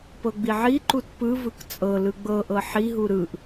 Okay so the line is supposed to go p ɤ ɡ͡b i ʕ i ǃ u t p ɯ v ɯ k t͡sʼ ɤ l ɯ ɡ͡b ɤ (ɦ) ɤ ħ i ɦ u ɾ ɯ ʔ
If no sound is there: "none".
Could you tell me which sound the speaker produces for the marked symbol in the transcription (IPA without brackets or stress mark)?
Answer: ʔ